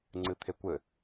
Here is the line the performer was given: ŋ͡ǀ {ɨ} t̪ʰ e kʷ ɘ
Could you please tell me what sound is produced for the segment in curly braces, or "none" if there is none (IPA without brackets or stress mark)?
ɨ